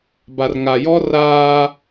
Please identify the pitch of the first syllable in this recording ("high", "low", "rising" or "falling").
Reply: low